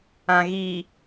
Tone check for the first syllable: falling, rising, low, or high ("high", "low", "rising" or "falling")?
low